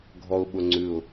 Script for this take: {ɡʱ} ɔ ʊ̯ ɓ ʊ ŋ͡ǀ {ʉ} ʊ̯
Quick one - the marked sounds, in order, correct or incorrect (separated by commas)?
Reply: correct, correct